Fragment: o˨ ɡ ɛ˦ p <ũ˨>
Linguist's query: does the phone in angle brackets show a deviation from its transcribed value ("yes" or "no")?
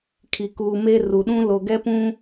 yes